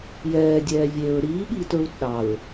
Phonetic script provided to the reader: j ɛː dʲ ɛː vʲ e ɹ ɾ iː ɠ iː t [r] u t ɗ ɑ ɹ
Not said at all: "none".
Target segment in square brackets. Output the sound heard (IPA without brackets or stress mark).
ɹ